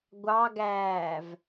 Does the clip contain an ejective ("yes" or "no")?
no